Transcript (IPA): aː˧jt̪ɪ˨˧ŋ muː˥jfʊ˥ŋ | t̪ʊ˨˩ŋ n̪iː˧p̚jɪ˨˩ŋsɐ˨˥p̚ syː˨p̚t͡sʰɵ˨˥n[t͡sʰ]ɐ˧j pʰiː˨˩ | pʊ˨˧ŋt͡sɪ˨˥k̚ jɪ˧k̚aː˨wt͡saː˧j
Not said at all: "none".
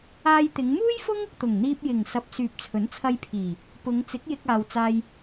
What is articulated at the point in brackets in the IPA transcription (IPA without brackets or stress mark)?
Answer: t͡sʰ